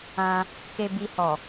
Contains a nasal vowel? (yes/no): yes